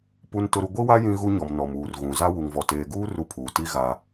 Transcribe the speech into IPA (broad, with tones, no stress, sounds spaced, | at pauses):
p u˦ n t ʊ˦ ɾ u˦ ɡʷ i˦ w a˦ j ĩ˦ ɣ u˦ ɲ ɔ˨ m n ɔ˨ m uː˨ r ɣ ũ˨ z a˦ w u˨ ŋ v ɔ˨ t eː˨ ɡ uː˦ r u˦ pʰ uː˨ t i˦ ɣ a˦